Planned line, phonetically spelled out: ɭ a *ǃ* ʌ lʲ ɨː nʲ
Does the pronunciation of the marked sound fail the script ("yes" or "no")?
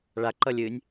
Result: no